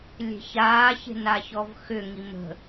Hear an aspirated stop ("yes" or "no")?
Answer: no